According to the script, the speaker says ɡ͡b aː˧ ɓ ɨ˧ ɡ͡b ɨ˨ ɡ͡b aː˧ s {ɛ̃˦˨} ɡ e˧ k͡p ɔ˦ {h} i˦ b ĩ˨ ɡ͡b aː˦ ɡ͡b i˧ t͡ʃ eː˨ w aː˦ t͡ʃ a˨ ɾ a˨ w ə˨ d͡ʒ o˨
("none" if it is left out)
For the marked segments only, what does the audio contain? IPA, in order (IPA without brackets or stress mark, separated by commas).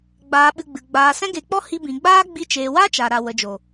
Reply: ɛ̃˦, h